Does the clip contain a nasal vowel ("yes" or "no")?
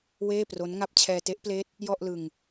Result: no